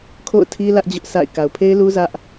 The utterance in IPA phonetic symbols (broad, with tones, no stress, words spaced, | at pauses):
kʰo̰˦˨ʊ̯tʰi˦ lä˦ʔd͡ʑʊ˦ʔsʰa̰˦˨ɪ̯ ka˨ʊ̯pʰe˦ɪ̯lu˦ zä˦ʔ